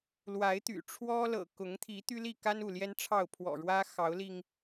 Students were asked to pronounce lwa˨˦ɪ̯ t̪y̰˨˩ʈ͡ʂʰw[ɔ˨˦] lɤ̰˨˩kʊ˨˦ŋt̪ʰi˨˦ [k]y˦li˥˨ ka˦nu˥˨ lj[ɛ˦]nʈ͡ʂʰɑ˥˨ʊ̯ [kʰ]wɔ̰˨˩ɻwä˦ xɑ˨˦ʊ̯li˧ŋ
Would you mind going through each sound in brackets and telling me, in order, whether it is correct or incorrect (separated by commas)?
incorrect, incorrect, correct, incorrect